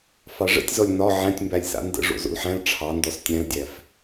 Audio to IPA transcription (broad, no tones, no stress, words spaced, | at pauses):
fɑʐə̰tʲzɔlʲ nɒ ʕæ̃tʲmbælʲsa̰ ndə̰ ʐo̰zo̰lħæ̃l ʈ͡ʂʰɑndɔs tʲæ̃ldʲæf